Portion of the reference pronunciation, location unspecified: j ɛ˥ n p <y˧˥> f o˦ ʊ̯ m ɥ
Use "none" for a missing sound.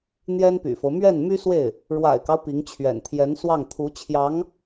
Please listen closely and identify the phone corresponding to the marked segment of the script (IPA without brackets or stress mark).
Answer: y̰˨˩